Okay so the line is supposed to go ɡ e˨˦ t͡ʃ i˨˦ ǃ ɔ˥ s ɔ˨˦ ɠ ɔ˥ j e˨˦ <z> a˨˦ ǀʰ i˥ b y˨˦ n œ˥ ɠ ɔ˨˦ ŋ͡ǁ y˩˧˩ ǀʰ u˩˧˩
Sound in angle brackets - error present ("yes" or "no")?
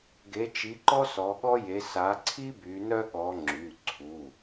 yes